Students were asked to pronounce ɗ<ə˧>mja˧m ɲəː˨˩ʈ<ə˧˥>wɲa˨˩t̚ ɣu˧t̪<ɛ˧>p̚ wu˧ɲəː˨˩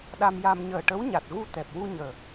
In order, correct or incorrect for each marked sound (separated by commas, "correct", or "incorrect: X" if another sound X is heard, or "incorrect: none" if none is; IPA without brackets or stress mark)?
incorrect: a˧, correct, incorrect: ɛ˨˩